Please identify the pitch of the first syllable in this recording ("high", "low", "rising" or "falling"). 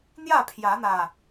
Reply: falling